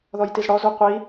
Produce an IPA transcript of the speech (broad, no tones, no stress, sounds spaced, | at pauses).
ð ɔ j t i z ɽ ɔ z u qʷ i